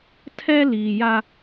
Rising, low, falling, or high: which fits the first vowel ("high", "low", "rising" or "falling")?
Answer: high